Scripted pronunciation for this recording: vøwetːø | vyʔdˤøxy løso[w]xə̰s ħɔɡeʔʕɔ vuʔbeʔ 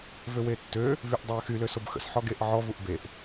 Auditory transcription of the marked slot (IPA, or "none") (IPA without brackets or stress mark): b